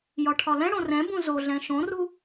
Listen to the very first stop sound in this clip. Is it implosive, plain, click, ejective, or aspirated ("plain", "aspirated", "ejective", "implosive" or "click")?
aspirated